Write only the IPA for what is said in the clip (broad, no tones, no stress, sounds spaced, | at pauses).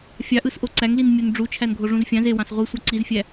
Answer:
fʲ ɑ ʔ ɯ s ʔ o ǀ æ ŋ l i n mʲ o n ɖ͡ʐ u t͡ʃʰ æ n ɡʱ o ʐ ũ z fʲ ɑ̃ z e w ɑ̃ s ʁʷ i sʷ ɑ ǀ i z fʲ æ